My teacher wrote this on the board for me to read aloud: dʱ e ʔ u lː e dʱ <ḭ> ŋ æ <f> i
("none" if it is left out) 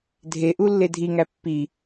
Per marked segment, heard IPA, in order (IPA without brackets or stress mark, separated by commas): i, pː